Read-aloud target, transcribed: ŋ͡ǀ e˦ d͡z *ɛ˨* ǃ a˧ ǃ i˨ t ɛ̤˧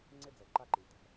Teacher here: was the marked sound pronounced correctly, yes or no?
yes